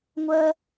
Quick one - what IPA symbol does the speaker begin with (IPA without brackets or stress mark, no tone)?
ŋʷ